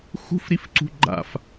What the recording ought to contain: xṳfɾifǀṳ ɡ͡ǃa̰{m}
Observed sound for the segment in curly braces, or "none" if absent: f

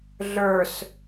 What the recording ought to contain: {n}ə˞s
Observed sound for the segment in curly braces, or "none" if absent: ɮ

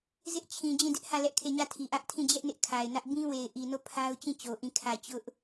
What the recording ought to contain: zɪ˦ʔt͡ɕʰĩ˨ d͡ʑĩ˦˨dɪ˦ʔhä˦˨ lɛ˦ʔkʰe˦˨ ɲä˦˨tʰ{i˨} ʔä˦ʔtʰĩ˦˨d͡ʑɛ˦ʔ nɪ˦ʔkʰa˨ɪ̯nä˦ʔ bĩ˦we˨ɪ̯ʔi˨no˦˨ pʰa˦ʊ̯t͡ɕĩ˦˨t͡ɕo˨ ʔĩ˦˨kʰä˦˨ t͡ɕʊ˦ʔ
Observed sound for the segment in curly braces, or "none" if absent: i˨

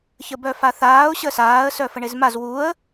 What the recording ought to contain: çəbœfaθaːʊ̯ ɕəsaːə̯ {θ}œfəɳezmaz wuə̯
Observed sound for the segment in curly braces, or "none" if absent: s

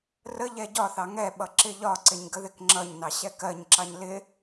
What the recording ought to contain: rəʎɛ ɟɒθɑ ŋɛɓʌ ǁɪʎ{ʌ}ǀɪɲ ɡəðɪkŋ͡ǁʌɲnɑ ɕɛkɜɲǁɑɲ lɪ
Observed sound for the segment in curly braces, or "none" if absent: ɒ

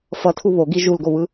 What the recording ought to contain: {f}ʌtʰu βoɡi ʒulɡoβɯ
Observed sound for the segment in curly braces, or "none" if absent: f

